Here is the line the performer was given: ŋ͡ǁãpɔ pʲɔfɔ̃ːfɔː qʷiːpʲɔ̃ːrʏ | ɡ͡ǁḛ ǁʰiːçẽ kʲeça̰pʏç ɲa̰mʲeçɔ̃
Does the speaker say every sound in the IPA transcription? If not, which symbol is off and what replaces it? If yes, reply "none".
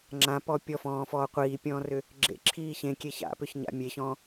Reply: none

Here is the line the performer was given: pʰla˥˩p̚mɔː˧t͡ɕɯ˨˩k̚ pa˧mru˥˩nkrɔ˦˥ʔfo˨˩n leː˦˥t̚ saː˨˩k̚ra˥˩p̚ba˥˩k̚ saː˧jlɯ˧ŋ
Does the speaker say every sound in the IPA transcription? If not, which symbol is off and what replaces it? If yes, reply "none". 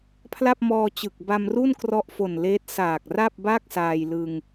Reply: p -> b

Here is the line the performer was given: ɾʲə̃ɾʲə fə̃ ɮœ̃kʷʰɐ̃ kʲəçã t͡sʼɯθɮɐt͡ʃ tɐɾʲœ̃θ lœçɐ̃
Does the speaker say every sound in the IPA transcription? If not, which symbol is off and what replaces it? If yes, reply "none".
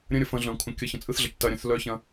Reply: ã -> ə̃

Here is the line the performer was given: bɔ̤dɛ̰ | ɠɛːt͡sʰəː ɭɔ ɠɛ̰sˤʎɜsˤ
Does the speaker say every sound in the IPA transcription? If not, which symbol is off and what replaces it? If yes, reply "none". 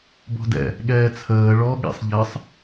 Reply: none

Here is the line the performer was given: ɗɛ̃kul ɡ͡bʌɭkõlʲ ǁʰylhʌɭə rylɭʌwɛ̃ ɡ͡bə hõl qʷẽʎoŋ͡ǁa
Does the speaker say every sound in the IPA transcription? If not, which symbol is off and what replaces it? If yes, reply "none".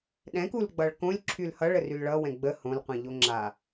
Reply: none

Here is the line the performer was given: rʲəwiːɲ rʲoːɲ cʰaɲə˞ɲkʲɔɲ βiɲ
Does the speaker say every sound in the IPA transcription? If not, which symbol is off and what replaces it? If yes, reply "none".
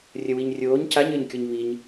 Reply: none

